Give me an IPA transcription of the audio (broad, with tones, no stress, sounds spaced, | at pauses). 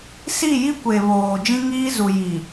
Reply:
s i˦˨ j i˦ kʷ e˨ β oː˨ d͡ʒ ĩ˦ ŋ iː˦ z u˨ j i˨